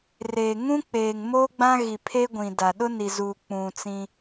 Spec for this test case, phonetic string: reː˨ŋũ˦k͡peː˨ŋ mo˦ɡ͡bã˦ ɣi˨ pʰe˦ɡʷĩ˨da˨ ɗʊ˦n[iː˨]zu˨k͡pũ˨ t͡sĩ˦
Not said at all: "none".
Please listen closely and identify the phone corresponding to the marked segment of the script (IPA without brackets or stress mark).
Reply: i˨